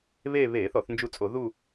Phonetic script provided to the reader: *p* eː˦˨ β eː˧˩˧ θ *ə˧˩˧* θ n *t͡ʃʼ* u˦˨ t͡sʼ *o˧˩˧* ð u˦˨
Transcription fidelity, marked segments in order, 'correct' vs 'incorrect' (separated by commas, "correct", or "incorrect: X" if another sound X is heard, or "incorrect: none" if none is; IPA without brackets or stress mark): incorrect: β, incorrect: ɔ˧˩˧, incorrect: d͡ʒ, correct